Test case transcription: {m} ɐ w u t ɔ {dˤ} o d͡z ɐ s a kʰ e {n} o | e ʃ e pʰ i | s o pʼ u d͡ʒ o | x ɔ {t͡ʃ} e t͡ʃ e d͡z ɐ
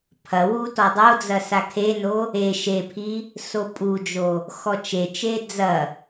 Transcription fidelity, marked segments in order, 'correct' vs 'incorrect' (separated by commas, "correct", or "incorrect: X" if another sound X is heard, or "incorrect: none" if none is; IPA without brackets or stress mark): incorrect: pʰ, correct, correct, correct